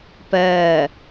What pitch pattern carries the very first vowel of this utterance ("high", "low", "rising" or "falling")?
falling